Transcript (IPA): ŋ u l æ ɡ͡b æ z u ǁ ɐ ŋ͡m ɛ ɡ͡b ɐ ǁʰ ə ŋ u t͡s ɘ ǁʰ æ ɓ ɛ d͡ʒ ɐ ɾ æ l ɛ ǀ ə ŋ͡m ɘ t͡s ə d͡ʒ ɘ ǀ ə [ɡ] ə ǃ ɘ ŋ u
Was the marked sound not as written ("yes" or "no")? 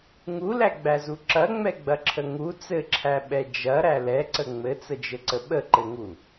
yes